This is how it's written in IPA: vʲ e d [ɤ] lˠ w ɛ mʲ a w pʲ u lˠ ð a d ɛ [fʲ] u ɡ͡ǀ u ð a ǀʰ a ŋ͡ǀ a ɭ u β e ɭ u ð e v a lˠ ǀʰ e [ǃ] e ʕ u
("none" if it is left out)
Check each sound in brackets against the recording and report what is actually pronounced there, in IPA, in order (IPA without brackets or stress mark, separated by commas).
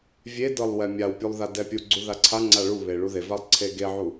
ɤ, pʲ, ɡ